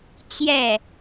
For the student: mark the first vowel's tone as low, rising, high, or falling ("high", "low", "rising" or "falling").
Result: falling